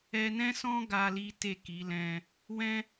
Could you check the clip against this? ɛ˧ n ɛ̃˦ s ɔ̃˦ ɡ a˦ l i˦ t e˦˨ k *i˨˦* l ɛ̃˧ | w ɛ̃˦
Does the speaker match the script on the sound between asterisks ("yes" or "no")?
yes